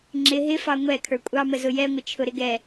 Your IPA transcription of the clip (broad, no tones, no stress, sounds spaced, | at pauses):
ŋ͡ǁ ɪ ɦ ɪ f ɑ ŋʷ ɛ kʰ ə˞ kʷʼ ɑ m ə z ʊ j ɛ ŋʷ ɪ t͡ʃʰ ʊ ɾ ɪ ɡ ɛ